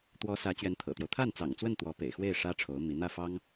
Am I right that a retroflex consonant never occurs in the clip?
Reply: no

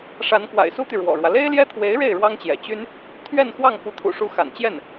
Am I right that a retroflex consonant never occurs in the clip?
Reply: no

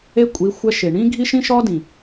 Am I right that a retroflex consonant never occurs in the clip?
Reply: no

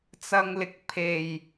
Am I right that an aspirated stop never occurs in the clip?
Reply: no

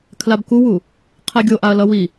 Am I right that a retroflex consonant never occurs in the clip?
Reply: yes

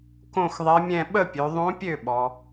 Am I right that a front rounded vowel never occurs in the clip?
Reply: no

